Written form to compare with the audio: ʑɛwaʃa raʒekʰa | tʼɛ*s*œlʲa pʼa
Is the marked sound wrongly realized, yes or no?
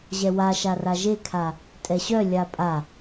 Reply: yes